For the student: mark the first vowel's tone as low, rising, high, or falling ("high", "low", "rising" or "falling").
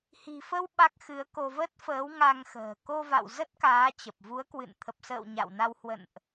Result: low